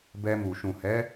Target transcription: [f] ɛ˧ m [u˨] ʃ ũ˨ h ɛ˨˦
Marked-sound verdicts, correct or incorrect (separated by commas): incorrect, correct